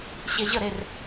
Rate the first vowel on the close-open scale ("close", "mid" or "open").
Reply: mid